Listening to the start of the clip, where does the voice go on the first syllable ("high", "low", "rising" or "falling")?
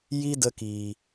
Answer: high